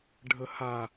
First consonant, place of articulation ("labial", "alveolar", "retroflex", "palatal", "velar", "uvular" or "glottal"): retroflex